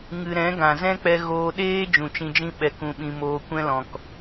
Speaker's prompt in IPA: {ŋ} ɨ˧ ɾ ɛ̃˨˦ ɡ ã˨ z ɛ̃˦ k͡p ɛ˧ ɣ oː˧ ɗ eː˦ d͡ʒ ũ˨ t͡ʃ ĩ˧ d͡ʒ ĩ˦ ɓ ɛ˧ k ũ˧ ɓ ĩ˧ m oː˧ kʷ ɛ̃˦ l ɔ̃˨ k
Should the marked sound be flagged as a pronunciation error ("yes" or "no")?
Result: no